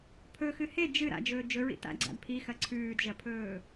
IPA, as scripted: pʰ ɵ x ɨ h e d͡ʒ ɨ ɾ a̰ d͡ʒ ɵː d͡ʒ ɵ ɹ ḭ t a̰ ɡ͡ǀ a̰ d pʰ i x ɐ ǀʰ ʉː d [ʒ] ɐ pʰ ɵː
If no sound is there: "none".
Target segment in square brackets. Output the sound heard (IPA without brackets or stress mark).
ʒ